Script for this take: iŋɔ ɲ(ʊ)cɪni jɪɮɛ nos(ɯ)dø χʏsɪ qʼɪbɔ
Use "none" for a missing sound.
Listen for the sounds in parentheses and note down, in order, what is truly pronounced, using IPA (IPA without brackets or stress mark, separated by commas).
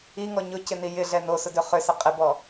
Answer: ʊ, ʊ